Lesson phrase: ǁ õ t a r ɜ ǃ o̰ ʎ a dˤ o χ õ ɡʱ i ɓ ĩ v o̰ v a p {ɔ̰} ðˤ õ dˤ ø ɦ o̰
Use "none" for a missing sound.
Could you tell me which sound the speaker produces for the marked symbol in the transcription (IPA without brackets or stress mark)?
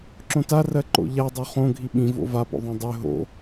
o̰